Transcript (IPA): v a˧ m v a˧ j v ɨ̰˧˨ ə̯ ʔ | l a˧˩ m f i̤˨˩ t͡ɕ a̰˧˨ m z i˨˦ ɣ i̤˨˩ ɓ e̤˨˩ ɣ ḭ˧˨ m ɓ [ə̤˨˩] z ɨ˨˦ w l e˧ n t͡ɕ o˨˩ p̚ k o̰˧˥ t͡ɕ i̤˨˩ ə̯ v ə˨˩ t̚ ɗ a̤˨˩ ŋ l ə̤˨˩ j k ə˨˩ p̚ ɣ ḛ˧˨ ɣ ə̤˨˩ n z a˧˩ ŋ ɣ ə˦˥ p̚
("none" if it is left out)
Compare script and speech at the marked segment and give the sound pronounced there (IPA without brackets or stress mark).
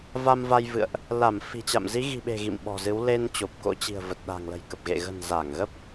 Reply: ɔ̤˨˩